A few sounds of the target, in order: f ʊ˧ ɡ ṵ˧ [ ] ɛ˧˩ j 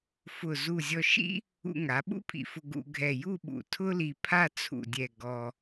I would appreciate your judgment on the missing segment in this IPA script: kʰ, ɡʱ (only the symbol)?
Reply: ɡʱ